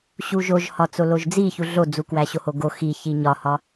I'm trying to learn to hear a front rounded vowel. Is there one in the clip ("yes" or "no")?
no